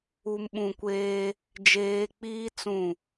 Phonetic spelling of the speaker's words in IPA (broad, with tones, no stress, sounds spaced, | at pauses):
u˨ m ɓ ũ˨ kʷ eː˦ | d͡ʒ eː˨ k͡p iː˦ t͡s ũ˦˨